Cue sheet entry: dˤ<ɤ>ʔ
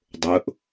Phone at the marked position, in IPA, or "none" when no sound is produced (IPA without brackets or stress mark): o